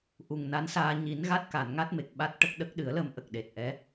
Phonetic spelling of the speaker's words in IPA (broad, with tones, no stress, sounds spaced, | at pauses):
ʔ u˨˩ ŋ n a˧˥ n s aː˧ ɲ i˨˩˦ n ɣ a˦˥ t̚ k a˨˩˨ n ŋ a˦˥ t̚ m e˨˩ k̚ ɓ a˦˥ t̚ ʈ ə˦˥ k̚ ɗ ə˦˥ k̚ ɗ ɨ˨˩˦ ə̯ l ə˧ m ʔ ə˨˩ k̚ ɗ e˨˩ t̚ ʔ ɛ˧˥